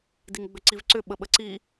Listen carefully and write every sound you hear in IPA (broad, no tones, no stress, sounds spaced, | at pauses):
d i ŋ ɡ͡b ʏ ǀ i v ǀ ʏ ɓ ə ɓ ə ǀ i